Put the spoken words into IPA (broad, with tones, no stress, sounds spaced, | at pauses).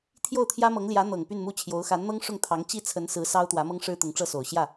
t̪ʰ j o˥˩ ʊ̯ t̪ʰ j ä˥ m ɤ˧˥ ŋ l j ä˧˥ n̪ ɤ˨˩ ŋ p y˥˧ n m u˥˩ t͡ɕʰ j o˧˥ ʊ̯ x a˧˥ n n̪ ɤ˥ ŋ ʂ ʊ˥˩ ŋ t̪ʰ ɑ˧˥ ŋ t͡ɕ i˥ t͡sʰ ə˧˥ n s ɹ̩˧˥ s ɑ˥ ʊ̯ t̪ w ä˧˥ m ɤ˥ ŋ ʂ ɻ̩˥ t̪ ʊ˧˥ ŋ ʈ͡ʂ ɤ˥˩ s o˨˩ ʊ̯ ɕ j ä˥˩